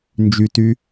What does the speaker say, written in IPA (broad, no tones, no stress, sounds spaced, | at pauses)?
n d͡ʒ y t y